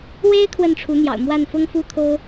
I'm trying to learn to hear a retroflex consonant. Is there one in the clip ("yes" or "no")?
yes